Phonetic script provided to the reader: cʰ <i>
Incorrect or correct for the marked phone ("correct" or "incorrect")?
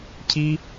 correct